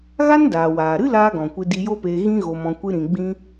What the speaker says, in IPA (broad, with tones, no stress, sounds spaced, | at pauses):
ɣ a˦ n d aː˨ w aː˨ ɾ ɨ˦ l aː˧ ɡ ɔ̃˨ kʷ ɨ˧ d i˧ j o˦ p eː˧ ɣ ĩ˦ ɣ o˧ m ɔ̃˧ kʷ ɨ˦ ɾ ĩ˧ ɡ͡b ĩ˦